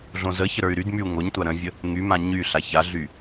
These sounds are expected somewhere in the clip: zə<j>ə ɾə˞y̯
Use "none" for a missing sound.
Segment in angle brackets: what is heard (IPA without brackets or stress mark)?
ç